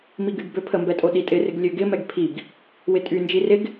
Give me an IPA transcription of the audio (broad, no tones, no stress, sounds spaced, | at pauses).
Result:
m i ɡ y ɡ b ø pʰ ə m b ɛ tʼ o ɗ i tʼ ɪ r ɪ ɡ lʲ ø ɡ ɪ m ɛ ɡ pʰ i ɡ | w ɪ tʼ y n d͡ʒ i r ɪ ɡ